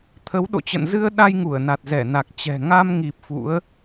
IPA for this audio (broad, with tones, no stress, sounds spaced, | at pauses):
t̪ʰ ə˨˦ w ɗ o̰˧˨ t͡ɕ ə̰˧˨ n z ɨ˧ ə̯ ɗ a˧ j ŋ u˧˩ ə̯ n a˨˩ t̚ z ɛ˧˩ n a˨˩ k̚ t͡ɕ ɛ̤˨˩ ŋ a˧ m ŋ i˨˩ p̚ f ṵ˧˥ ə̯